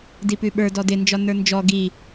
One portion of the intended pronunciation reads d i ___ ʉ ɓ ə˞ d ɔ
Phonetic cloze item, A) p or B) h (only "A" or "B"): A